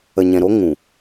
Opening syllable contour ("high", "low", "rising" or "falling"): low